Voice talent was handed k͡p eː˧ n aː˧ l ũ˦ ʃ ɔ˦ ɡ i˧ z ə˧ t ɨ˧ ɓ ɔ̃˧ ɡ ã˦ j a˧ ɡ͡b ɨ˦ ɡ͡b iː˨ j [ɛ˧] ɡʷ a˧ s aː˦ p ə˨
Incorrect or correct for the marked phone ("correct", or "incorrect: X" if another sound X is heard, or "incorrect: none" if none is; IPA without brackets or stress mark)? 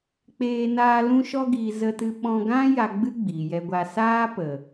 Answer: correct